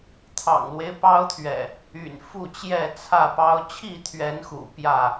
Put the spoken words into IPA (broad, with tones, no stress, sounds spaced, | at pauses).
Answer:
t̪ʰ ɑ̰˨˩ ŋ l w e˦ ɪ̯ p ɑ˦ ʊ̯ t̪ʰ ɥ ɛ̰˨˩ | y̰˨˩ n f u˥˨ t͡ɕ j ɛ˥˨ t͡sʰ ä˥˨ p ɑ˦ ʊ̯ t͡ɕʰ i˥˨ t̪ʰ ɥ ɛ˨˦ n x ṵ˨˩ p j ä˥˨